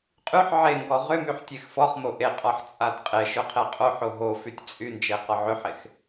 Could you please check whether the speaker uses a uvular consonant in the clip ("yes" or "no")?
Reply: yes